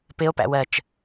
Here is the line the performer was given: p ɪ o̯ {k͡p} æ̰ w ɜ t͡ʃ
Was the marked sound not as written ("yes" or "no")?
yes